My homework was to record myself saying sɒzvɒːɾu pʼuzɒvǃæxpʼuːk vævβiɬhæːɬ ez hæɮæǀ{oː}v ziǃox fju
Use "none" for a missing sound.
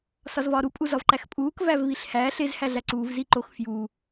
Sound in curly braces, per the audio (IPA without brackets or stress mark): uː